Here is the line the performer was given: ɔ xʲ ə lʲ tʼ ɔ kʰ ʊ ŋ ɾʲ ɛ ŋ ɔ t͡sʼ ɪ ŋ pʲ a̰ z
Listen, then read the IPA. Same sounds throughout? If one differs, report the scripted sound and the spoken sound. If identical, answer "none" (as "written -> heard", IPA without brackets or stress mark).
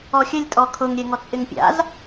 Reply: none